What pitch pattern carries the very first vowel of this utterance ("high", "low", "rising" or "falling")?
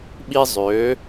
high